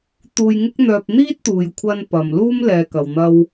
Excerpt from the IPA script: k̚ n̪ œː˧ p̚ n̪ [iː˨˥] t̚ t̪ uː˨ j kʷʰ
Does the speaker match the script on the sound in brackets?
no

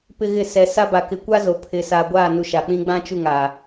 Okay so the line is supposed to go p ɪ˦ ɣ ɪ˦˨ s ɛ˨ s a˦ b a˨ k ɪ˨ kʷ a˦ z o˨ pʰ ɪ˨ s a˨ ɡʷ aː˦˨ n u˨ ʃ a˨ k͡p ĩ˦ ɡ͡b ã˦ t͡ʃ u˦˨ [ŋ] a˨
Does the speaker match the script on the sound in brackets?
yes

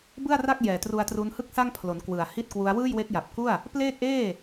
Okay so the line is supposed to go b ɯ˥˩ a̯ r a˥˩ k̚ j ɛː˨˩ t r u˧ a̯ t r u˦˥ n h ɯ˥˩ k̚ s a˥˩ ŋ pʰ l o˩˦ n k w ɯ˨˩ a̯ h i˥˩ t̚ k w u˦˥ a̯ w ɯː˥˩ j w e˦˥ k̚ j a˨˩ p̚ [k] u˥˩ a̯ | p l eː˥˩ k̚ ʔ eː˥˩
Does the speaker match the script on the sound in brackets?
yes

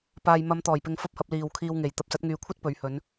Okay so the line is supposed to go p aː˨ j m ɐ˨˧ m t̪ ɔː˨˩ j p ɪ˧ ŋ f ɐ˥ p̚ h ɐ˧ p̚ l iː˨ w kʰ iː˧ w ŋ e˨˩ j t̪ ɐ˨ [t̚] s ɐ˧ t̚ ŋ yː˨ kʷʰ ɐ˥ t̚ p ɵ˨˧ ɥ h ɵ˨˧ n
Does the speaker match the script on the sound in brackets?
no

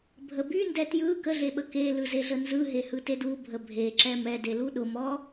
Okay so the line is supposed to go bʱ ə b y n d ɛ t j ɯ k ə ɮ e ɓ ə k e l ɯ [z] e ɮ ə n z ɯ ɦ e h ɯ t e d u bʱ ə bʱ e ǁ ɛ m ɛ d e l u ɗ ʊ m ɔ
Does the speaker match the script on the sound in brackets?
yes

